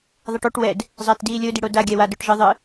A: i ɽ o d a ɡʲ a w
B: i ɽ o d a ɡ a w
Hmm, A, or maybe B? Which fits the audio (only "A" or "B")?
A